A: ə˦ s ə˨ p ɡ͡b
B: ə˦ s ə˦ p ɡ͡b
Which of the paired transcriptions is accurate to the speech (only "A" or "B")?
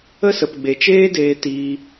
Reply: A